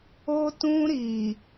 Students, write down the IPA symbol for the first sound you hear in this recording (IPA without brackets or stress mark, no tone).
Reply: o